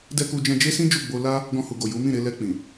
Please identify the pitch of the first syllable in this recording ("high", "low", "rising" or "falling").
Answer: high